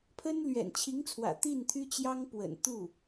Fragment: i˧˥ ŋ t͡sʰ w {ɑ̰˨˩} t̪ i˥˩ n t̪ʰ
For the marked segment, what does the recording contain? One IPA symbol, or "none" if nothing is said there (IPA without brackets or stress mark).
ä̰˨˩